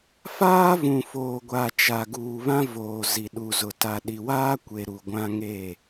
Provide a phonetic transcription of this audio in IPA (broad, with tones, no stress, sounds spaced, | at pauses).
f aː˦ v ũ˨ f oː˨ ɡʷ a˨ t͡ʃ a˨ ɡ uː˨ β ã˦ v oː˨ z i˨ ɗ u˨ z ʊ˨ t a˨ ɗ i˨ w aː˦ kʷ e˨ ɾ u˨ ɡʷ ã˦ ŋ e˦˨